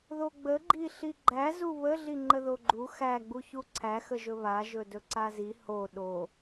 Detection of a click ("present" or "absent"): present